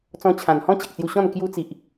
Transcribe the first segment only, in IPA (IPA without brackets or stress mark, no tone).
t͡s